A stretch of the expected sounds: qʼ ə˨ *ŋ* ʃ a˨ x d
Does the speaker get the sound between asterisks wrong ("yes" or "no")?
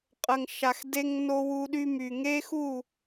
no